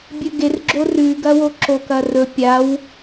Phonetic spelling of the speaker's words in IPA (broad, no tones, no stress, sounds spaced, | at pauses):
bʲ ɵ ɡ e r ɡ͡ǁ o r ʉ ɡ ɐ w o ǁ o k ɐ r ɵ pʲ a w